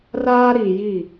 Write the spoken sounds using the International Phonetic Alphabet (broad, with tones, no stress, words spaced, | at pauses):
raː˦ɾiː˨ji˦˨